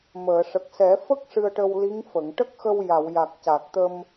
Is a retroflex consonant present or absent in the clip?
present